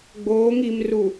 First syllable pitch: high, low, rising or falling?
rising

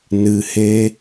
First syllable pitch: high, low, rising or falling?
low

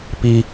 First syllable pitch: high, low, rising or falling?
low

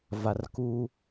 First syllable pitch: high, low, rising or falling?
low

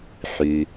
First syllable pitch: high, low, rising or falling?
low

